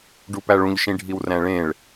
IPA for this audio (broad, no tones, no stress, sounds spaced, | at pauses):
ɖ u p æ ɭ ũ ʎ ʃ ĩ ɖʱ i w r æ̃ ɭ ẽ ɭ